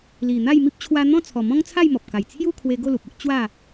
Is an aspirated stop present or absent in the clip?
present